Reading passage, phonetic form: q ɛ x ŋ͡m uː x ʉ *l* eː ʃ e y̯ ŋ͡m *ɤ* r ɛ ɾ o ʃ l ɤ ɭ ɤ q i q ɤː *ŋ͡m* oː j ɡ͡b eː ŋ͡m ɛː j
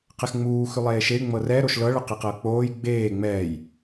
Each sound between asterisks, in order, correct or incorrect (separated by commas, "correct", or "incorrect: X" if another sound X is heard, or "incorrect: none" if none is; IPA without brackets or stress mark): incorrect: lˠ, correct, incorrect: k͡p